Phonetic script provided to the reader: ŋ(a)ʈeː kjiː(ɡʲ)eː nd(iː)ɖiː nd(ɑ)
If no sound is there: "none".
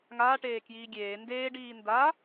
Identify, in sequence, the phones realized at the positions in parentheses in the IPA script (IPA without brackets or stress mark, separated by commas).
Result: aː, ɡʲ, eː, a